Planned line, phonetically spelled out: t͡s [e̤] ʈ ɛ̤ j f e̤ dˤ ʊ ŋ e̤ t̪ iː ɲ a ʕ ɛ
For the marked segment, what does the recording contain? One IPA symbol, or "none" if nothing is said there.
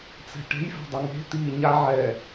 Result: ɛ̤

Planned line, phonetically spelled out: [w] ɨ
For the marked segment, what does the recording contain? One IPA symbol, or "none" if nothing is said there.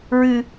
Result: ɹ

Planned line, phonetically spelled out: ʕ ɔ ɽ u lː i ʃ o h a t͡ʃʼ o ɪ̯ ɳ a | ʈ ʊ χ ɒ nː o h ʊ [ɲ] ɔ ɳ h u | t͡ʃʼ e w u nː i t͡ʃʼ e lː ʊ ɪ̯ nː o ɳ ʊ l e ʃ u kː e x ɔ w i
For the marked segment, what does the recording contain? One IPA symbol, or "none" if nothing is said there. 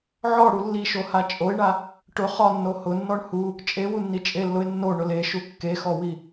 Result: nː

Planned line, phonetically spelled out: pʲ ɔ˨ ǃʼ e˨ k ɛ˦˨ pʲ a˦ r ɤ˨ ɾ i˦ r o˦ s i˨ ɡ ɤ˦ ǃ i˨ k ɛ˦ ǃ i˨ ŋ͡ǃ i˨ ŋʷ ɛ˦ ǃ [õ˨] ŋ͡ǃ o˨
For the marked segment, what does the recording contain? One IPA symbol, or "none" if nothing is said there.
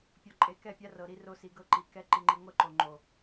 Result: o˨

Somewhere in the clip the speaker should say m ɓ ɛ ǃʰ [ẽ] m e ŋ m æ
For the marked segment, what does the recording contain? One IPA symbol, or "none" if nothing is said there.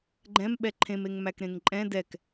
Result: ẽ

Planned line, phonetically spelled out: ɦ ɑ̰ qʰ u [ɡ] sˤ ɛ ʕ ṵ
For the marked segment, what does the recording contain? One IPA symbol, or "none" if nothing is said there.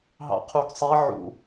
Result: ɡ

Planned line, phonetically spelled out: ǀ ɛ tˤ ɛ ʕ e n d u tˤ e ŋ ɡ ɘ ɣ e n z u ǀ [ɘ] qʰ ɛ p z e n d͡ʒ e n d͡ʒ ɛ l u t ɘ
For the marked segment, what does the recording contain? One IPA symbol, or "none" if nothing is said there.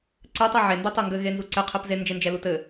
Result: ɛ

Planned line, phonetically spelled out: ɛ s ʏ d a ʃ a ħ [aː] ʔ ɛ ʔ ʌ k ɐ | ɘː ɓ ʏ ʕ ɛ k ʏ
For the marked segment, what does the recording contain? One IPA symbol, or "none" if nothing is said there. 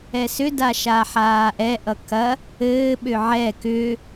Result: aː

